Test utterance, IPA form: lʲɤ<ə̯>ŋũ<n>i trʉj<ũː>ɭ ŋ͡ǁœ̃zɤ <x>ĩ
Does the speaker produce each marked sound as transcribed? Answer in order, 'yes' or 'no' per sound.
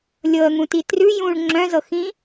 yes, no, yes, yes

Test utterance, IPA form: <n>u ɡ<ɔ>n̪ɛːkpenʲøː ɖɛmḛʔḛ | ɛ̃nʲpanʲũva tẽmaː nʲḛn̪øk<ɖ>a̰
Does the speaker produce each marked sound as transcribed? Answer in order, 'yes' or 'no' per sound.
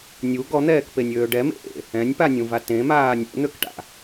no, yes, no

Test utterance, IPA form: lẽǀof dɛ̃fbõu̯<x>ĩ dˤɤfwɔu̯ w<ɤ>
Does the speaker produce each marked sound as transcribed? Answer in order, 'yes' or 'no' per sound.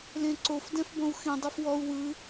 yes, no

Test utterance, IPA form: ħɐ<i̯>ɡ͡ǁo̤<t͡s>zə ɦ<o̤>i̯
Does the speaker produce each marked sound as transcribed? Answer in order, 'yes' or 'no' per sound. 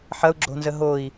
no, no, no

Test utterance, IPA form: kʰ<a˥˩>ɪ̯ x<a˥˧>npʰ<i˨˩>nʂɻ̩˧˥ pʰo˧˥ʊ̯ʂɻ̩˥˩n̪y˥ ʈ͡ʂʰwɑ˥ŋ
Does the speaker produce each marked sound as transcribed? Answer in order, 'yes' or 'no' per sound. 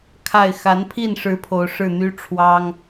yes, no, no

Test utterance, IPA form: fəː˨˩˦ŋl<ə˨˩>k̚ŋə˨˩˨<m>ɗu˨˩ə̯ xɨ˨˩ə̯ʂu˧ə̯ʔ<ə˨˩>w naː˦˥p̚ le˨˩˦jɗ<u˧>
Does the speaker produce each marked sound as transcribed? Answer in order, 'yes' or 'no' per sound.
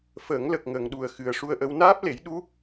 yes, no, no, no

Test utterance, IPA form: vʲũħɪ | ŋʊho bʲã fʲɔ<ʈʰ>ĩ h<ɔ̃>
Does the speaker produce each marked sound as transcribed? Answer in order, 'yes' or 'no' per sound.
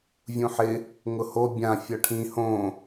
yes, no

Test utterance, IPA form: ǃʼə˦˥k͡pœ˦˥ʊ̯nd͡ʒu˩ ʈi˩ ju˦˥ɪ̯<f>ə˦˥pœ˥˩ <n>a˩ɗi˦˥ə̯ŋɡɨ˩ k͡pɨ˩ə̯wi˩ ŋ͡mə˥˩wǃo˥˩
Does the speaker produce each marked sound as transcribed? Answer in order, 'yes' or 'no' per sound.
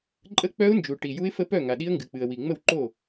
yes, no

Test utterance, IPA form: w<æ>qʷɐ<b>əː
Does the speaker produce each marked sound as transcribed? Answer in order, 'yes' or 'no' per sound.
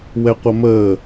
no, no

